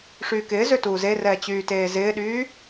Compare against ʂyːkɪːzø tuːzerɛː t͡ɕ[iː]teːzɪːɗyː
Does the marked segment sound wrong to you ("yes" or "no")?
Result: yes